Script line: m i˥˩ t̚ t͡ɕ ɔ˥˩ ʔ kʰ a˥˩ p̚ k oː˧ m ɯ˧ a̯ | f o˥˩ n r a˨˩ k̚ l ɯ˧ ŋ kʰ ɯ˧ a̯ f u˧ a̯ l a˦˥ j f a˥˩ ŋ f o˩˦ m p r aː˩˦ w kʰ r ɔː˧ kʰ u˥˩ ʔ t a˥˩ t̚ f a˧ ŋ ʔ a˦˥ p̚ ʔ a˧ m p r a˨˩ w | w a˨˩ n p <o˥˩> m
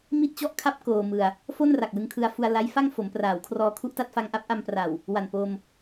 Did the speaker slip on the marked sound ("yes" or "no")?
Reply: yes